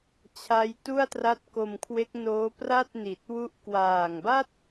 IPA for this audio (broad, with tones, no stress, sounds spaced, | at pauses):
t͡ɕʰ a˦˥ j t u˥˩ a̯ t r a˦˥ t̚ k o˧ m kʰ w e˦˥ k̚ n oː˦˥ p r a˥˩ t̚ n i˨˩ t̚ w u˦˥ ʔ k w aː˨˩ ŋ b a˥˩ t̚